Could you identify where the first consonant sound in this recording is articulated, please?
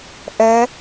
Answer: glottal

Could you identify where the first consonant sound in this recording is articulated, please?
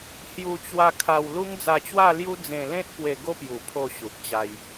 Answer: glottal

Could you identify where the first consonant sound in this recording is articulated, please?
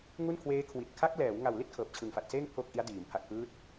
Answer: velar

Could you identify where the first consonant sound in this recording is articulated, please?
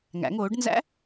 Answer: velar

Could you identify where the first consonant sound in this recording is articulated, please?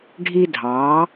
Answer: retroflex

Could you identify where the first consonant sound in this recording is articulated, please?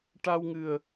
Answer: retroflex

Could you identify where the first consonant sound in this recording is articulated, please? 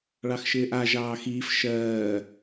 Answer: retroflex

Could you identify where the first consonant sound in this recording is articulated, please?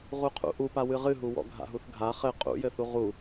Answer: uvular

